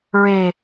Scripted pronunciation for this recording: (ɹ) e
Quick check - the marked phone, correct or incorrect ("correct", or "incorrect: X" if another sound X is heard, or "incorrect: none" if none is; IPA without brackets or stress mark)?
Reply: correct